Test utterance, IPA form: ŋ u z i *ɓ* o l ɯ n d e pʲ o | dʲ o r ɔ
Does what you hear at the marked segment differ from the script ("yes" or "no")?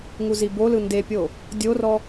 yes